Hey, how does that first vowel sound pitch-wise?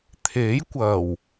rising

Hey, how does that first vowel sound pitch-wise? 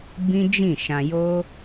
high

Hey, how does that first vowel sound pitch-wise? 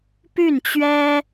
falling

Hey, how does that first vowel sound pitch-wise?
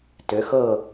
rising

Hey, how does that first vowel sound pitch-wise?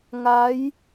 rising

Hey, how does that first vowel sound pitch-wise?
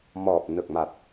low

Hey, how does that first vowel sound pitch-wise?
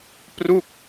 falling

